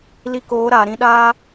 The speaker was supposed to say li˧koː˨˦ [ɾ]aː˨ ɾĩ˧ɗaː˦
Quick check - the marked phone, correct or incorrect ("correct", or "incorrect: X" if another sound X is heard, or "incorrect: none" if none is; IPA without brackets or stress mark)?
correct